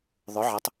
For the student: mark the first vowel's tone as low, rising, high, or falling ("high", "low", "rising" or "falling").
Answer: rising